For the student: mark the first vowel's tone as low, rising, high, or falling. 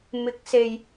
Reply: rising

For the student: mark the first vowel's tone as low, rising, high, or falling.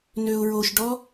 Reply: low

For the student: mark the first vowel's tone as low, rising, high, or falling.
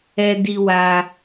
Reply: high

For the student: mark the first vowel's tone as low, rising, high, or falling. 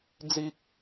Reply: high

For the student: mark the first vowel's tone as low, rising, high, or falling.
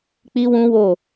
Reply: high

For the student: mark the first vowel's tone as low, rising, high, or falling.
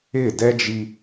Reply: falling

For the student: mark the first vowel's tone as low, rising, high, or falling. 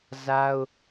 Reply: high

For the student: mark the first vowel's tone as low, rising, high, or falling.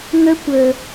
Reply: high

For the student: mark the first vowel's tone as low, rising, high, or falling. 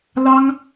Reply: high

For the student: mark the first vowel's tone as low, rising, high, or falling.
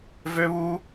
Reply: high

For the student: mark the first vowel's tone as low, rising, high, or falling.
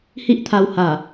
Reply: high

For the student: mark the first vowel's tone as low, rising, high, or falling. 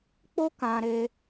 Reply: high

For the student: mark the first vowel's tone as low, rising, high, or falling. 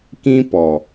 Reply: high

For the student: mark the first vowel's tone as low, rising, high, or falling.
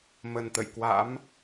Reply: low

